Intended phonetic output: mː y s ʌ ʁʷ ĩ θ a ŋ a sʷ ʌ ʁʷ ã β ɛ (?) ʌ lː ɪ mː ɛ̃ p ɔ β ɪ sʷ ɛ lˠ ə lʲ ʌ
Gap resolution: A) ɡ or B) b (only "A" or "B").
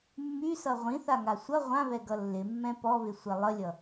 A